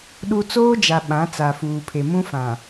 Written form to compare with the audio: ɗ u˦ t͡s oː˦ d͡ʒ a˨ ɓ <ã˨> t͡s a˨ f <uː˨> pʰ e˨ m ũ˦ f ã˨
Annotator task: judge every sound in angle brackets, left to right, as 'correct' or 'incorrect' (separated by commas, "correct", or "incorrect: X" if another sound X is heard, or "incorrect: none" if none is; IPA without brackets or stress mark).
incorrect: ã˨˦, correct